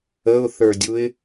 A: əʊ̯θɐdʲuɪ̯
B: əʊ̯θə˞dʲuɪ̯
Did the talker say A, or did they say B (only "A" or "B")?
B